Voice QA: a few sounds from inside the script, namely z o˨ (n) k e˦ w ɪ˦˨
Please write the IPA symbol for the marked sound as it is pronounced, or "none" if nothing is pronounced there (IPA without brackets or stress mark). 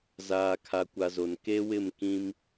n